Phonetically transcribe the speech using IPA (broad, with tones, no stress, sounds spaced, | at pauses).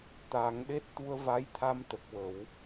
t̪ aː˨˩˦ ŋ ɗ e˦˥ t̚ t̪ u˧ ə̯ v a˧˥ j t̪ʰ a˧ m t̪ ə˨˩ k̚ w ə˨˩˦ w